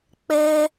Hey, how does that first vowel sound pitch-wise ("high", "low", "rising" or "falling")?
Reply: high